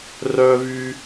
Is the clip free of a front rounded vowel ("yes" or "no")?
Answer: no